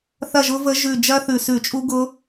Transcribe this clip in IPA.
θ ɐ˥˨ ʒ ʊ˦˥ v ə˦˥ ʒ ʉ˧˩ d͡ʒ ɐ˦˥ θ ʉ˧˩ s ʉ˧˩˧ t͡ʃʼ u˦˥ ɡ ʊ˦˥

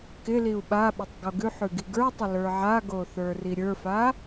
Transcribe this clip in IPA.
k ɪ l i u̯ ɓ a ɓ ɪ tˤ ɡ o ɡ ʉ ħ ʉ ɡ i ɡ ə˞ tˤ ɪ l ə˞ ʕ a ɡ o θ ə˞ r i ɾʲ ə˞ f a

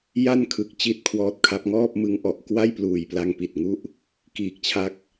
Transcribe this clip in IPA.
j a˥˩ n kʰ ɯ˨˩ k̚ t͡ɕ i˥˩ t̚ kʰ w ɔː˦˥ t̚ kʰ a˦˥ p̚ ŋ ɔː˥˩ p̚ m ɯ˦˥ ŋ ʔ ɔ˨˩ ʔ k w a˥˩ j p l uː˨˩ j p l a˧ ŋ p i˨˩ t̚ ŋ u˥˩ ʔ | k iː˨˩ k̚ t͡ɕʰ a˦˥ k̚

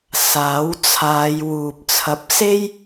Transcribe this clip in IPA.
s aː˨˥ w t͡sʰ aː˨˧ j w uː˨ p̚ t͡sʰ ɐ˧ p̚ s e˥ j

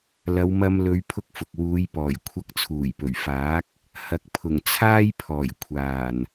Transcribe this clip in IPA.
l ɐ˨˧ w m ɐ˧ m l ɵ˨˧ ɥ pʰ ʊ˥ k̚ f ʊ˨ k̚ w uː˨˧ j p ɔː˨˩ j kʷʰ ɐ˧ k̚ t͡sʰ uː˨˩ j p ɵ˨˩ ɥ f aː˨˥ k̚ | h ɐ˨ k̚ pʰ ʊ˨˩ ŋ t͡sʰ aː˥ j pʰ ɔː˨˩ j kʷʰ aː˨˩ n

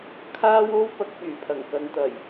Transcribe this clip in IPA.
kʰ aː˥ w o˥ w p ɐ˨˥ k̚ p yː˨˩ pʰ ɐ˨˩ ŋ k ɐ˨ n t̪ ɐ˨˩ j

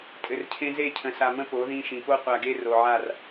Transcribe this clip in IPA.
tʼ ɘ˨ r cʰ ẽ˦ z e˦˨ cʰ ə̃˨ s a˨ m ə̃˦ p o˨˦ ð ĩ˦ ʃ ĩ˨ p o˦ qʷ a˨ ɡ e˦ r o˨ ʕ a˦˨ r

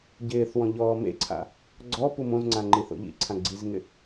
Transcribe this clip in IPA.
ɟ ɪː θ w ɔ̃ ʎ ɔː m ḛ ǀʰ a̰ | ɡ͡ǀ ɔ p u m õ z ŋ͡ǀ ã ŋ͡ǃ i θ o̰ ʎ ḭ ǀʰ ã ɡ͡ǀ i z ŋ ɪ

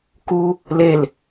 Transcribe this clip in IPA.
k u | l e l

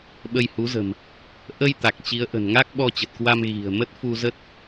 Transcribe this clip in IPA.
ɓ ə˧ j h u˨˦ z ə̤˨˩ m | ʔ ə˧ j t̪ a˨˩ k̚ t͡ɕ i˨˦ ə̯ ʔ ə̤˨˩ n ŋ a˦˥ k̚ ɓ ɔ˧ t͡ɕ ə˨˩ t̚ k w a˧ m ɣ i̤˨˩ ə̯ m ə˦˥ t̚ f u˧ z ə˦˥ t̚

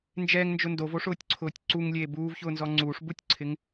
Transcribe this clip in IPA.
n d͡ʒ ɛ ŋ n d͡ʒ ʊ n d o v o ʂ ʊː tʲ ǀʰ ʊː tʲ ǀ u ŋ lʲ eː b uː v ç ʊː n z ɔ ŋ͡ǀ uː ʂ b u tʲ ǀʰ ɪ ŋ

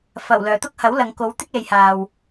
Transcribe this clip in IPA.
f ɐ˨˩ w l œː˨˩ t̪ ʊ˥ k̚ h ɐ˨˥ w l ɐ˨ ŋ k o˨˥ w t̪ ɪ˥ k̚ l e˨ j h aː˨ w

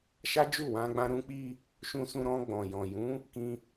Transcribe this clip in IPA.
ʃ a˦ d͡ʒ u˦˨ w ã˧ ɡ͡b ã˧ ɾ ũ˧ k͡p i˧ | ʃ ũ˧ s ũ˧ ɾ ɔ̃˧ ɡ͡b ɔ̃˨ j ɔ̃˨ j ũ˨˦ | k ĩ˧

